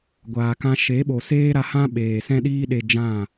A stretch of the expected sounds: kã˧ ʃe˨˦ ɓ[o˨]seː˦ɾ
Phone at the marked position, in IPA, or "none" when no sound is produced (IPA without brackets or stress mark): o˨